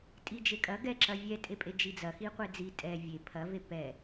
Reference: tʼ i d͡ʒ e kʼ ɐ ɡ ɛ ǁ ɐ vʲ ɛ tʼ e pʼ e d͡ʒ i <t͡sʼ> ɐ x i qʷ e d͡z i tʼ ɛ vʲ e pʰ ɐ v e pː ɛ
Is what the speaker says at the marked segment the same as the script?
no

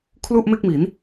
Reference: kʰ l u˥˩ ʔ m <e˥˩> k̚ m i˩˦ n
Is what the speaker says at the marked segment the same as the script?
yes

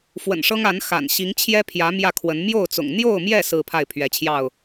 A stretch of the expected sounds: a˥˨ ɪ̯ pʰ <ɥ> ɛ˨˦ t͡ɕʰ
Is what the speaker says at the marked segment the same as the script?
yes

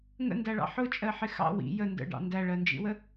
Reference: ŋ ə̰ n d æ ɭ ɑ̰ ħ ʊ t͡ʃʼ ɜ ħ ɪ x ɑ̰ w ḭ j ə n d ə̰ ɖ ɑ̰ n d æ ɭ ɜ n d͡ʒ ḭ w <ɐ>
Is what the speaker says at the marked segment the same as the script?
no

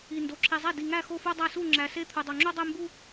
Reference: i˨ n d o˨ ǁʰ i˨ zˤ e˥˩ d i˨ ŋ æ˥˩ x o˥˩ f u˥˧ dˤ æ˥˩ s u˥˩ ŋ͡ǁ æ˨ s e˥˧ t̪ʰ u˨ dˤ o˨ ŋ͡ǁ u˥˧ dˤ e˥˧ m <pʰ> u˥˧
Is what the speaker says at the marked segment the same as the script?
no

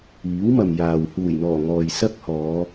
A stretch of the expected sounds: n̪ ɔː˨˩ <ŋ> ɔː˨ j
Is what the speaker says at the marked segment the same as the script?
yes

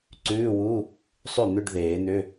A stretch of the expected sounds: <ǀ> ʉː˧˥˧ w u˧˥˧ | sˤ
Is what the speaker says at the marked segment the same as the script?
yes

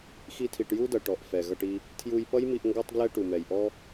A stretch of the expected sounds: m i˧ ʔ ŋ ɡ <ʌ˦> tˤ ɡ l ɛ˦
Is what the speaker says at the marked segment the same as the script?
no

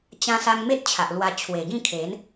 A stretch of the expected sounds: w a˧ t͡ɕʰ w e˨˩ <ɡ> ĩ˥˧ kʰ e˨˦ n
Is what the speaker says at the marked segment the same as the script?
yes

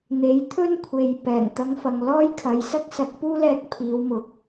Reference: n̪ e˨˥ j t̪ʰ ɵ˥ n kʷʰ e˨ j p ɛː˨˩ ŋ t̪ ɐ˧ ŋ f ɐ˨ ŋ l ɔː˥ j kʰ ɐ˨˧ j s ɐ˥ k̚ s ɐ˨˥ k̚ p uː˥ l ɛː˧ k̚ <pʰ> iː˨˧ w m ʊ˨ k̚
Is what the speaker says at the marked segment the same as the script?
yes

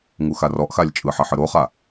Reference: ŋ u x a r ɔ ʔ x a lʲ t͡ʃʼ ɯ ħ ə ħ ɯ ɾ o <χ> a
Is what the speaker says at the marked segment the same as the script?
yes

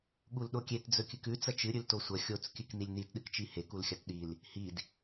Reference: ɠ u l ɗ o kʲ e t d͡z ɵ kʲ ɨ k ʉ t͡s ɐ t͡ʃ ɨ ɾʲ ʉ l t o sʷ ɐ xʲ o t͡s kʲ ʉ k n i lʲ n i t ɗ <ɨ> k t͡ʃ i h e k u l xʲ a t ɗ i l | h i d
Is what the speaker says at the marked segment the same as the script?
yes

